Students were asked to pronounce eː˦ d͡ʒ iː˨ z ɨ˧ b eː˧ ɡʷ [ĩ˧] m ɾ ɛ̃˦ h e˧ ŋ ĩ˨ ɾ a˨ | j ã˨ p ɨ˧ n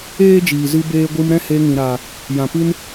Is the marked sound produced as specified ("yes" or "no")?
no